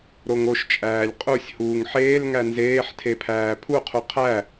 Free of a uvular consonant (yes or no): no